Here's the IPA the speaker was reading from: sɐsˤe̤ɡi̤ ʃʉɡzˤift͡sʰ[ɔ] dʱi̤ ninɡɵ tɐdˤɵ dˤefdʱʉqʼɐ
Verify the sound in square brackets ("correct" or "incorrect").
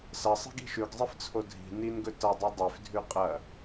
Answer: incorrect